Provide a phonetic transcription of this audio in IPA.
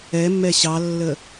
ɛ mː ɛ ɕ ɑ lː ə

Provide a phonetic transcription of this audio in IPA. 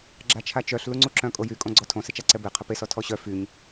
ɡ͡ǁ a t͡ʃʰ a t͡ʃ œ ɬ l u ŋ͡ǀ u ǁ œ̃ kʼ o j y kʼ õ ɡ͡ǀ ɔ tʰ õ s e t͡ʃ a ǀ ɛ b e qʰ ə p e s ɔ tʰ ɔ ɕ œ f y ɲ

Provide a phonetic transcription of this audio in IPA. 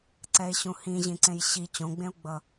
ǀ ɛ e̯ ɕ ũ h ĩ ʑ ĩ ǀ ẽ j ɕ i t͡ɕ õ ɡ͡b ẽ o̯ ɡ͡b ʌ

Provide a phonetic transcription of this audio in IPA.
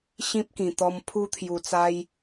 ɕ ĩ˦ p̚ k ĩ˨˩ t̪ ɔ˧ m pʰ u˧ t̪ʰ j u˨˩ t͡s a˧ j

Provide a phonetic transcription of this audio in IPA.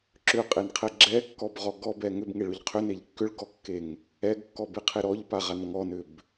ǁ ʏ qʼ e n qʰ ɛ ɡ͡ǁ ɛ kː ɔ b ʁ ɔ ɡ ɔ b ɛ ŋ ʏ b ŋ e ɭ ʏ ʎ qʰ ʏ n e ʎ kː ʏ ɭ ɡ ɔ kː e ŋ | ɛ ɡ kː ɔ b e qʰ e ɾ ɔ ʎ p a ʁ a n ŋ ɔ n ʏ b

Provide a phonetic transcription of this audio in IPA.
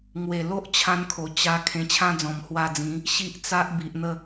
ŋ w e˨˩ l o˦ ʔ t͡ɕʰ ã˧ n kʰ o˨˩ t͡ɕ a˧ kʰ ẽ˧ t͡ɕʰ ã˦ d͡z ɔ̃˨˩ m h w a˧ d͡z ĩ˨˦ | ɕ i˦ ʔ t͡s a˦ ʔ b i˨ ʔ n̪ ə˥˧

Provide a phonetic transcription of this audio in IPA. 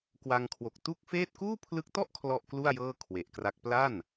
k w a˧ ŋ kʰ w o˨˩ k̚ t u˥˩ k̚ f eː˥˩ t̚ k uː˥˩ pʰ l ɯ˦˥ k̚ t ɔ˥˩ ʔ kʰ l ɔ˥˩ ʔ k l u˥˩ a̯ j ɤː˥˩ kʰ w e˨˩ ʔ k r a˦˥ k̚ p l a˥˩ n

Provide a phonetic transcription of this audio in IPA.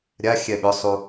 ɾʲ a xʲ ɛ ɓ ʏ sˤ u

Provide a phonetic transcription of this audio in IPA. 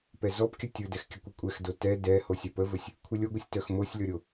p ɛ z ɔ p kʲ ə tʲ ɯ d ɛ x kʲ ə kʷ ɨ kʷʼ ɛ x d o t ɛ d ɛ h o sʲ œ p ə v ə sʲ | kʷʰ ɨ lʲ o ɡʷ ɯ sʲ t œ x m o sʲ lʲ ɔ ɾʲ o

